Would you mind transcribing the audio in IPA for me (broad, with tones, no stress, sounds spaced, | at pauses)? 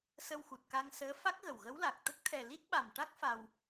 s ə˧ w x u˨˩ t̚ k a˧ ŋ s əː˧˥ f a˦˥ k̚ ɣ ə˨˩ w ɣ ə˧˥ w l a˨˩ k̚ t̪ ə˦˥ k̚ t̪ʰ ɛ˨˩ l i˦˥ t̚ ɓ a˨˩ m ʈ a˦˥ k̚ f a˧ w